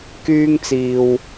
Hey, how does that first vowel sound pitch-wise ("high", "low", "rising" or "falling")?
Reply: high